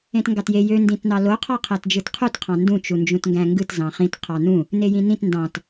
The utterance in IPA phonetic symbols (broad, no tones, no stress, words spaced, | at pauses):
ẽtŋɡɑtje jø ndĩtnɑlo qʰɑqʰætd͡ʒɯtqʰut qʰɑ̃ndũ t͡ʃund͡ʒũtŋɡæ̃ŋɡɯt zɑ̃χĩt qʰɑnũ | nejĩnĩt ndɑ̃t